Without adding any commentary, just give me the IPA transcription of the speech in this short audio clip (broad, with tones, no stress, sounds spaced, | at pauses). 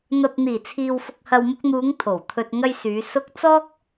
n̪ ɐ˧ p̚ n̪ iː˨˩ t͡sʰ iː˨ w f ʊ˨ k̚ h ɐ˨ w m ʊ˧ k̚ n̪ uː˨˧ ŋ t̪ʰ o˨˩ w t̪ʰ ɵ˧ t̚ ŋ ɐ˧ j s yː˨˧ s ʊ˥ k̚ t͡s ɔː˥ k̚